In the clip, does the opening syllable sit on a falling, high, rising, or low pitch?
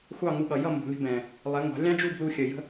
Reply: falling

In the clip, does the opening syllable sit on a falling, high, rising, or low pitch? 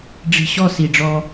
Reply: low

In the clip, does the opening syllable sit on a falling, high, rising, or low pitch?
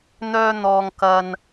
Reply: high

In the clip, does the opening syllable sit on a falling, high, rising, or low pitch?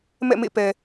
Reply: falling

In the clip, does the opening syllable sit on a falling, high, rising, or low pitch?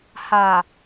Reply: low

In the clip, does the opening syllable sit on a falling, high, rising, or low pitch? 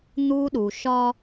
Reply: high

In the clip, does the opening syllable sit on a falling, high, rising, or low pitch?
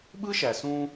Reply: high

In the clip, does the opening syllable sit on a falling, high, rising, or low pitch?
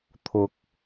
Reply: rising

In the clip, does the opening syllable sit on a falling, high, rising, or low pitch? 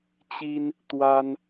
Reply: high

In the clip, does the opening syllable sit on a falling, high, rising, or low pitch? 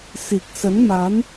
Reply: low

